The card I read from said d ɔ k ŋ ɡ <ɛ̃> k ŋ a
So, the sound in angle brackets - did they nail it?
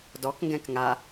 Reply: yes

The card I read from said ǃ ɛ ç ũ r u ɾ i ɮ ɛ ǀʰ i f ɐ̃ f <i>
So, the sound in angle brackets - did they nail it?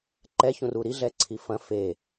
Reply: no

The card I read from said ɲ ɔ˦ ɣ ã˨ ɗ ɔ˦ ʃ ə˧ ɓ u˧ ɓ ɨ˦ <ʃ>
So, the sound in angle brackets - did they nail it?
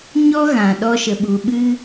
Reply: no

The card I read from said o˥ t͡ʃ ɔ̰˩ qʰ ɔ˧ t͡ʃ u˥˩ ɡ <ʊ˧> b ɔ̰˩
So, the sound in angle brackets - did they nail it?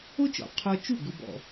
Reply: yes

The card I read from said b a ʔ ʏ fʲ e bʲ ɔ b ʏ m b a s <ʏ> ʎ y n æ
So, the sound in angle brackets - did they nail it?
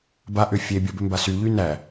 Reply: no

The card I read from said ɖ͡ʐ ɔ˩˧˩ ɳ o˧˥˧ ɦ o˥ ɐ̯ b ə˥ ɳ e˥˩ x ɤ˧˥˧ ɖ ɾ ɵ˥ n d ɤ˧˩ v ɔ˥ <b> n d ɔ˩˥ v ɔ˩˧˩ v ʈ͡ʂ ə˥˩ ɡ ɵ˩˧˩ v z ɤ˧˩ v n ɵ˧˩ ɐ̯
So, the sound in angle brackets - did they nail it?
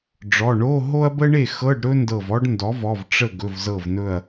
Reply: no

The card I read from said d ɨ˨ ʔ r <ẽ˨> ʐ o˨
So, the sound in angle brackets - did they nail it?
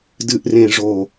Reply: yes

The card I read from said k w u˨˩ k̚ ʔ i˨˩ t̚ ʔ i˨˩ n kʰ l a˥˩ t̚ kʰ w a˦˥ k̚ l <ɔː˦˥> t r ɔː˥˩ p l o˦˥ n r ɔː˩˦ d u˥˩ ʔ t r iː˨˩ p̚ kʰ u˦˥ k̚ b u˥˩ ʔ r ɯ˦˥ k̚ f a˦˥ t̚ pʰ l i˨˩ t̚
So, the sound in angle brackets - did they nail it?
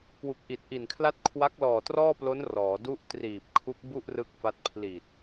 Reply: no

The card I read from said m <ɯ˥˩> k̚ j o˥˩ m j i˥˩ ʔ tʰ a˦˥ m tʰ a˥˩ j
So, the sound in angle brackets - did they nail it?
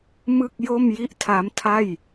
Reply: yes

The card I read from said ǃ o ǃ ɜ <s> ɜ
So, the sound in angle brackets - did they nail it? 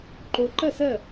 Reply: yes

